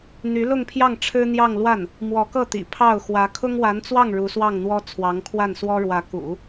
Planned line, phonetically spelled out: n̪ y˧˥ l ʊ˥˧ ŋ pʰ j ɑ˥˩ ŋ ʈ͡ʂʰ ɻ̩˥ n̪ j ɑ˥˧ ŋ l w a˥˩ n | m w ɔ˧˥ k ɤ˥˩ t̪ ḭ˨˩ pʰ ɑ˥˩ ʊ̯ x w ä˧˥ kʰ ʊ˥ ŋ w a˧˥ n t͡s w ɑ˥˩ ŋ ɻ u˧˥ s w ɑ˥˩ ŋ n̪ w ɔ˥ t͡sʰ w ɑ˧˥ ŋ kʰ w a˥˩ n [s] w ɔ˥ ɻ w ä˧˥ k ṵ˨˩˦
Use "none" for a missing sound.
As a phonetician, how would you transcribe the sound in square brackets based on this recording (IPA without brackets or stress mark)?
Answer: s